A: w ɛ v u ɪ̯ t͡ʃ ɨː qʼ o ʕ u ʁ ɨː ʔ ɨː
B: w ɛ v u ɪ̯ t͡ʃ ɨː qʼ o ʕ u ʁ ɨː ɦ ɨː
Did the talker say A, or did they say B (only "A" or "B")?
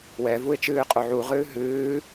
B